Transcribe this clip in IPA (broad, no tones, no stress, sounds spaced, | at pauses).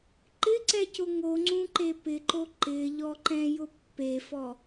ǃ ɪ ǀ ɛ c ʊ ŋ o ŋ͡ǀ ũ ǃ e p ɪ ǃ o ǃ ɪ ʎ ɔ ǃ ɛ̃ j ʊ pː e f ɔ